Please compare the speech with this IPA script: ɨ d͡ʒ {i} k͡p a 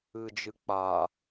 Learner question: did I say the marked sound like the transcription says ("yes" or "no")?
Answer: no